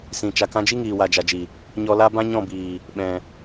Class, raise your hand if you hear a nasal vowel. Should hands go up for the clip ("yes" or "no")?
yes